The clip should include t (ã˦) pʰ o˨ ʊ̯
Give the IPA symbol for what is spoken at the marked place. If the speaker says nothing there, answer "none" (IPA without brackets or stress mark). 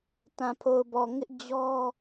ã˨